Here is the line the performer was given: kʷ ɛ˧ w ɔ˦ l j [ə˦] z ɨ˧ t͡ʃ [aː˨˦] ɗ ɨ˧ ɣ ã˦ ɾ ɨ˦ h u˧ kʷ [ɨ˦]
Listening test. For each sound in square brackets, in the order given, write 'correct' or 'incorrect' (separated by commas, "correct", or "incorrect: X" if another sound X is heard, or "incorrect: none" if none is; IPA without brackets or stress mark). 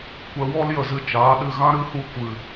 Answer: incorrect: ə˧, correct, incorrect: ɨ˨